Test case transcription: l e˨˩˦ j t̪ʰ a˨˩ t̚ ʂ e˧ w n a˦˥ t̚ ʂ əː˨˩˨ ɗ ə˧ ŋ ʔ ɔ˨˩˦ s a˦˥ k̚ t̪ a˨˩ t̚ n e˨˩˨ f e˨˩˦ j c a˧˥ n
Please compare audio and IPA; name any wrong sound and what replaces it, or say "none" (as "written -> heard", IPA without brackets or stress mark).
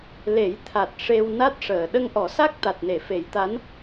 c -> t̪